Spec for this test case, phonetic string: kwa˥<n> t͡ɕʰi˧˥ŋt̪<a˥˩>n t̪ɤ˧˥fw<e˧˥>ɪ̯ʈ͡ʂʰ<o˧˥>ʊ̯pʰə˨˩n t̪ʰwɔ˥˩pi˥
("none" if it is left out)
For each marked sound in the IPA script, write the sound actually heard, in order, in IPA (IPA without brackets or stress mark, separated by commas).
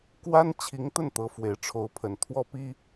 n, ə˥˩, e˨˩, o˧˥